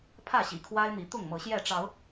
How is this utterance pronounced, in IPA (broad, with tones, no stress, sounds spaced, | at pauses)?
pʰ ä˥˨ ɕ ḭ˨˩ kʰ w a˦ ɪ̯ n̪ i˨˦ t̪ ʊ˥˨ ŋ m ɤ˨˦ ɕ j ɛ˥˨ ʈ͡ʂ ɑ˨˦ ʊ̯